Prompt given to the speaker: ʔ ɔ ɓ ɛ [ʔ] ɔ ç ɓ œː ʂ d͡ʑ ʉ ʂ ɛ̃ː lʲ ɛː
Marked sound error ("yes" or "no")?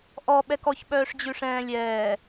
yes